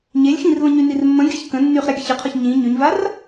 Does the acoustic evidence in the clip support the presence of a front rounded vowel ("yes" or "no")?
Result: yes